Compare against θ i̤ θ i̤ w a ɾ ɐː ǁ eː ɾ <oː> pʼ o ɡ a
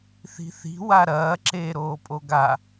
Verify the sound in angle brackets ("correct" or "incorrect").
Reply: correct